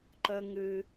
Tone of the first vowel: high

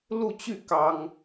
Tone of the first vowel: falling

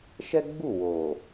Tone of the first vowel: high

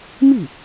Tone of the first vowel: falling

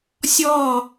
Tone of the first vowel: falling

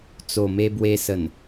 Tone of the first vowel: low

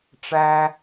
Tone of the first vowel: high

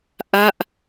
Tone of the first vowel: falling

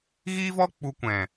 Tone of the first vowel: high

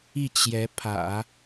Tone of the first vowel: falling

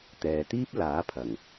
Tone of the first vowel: low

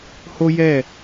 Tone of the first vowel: high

